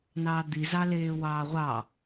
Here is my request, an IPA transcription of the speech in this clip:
nɑːd̪i zɑleːwɑːʁʷɑ

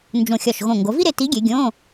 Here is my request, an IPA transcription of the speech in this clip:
nd͡ʒõ˧˩xʲɒ˧˩ʃ ɣõ˧˩ ŋɡo˩˧vi˥ɾe˩˧ ti˨˥ɡʲe˩˧ ɡʲõ˧˥˧

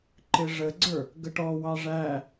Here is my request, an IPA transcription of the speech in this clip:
ǃɪʐəɡ͡ǀə˞ | ɡəʈɔwɑ ʐæ

